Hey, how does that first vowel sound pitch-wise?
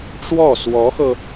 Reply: falling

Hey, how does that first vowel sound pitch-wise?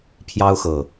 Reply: high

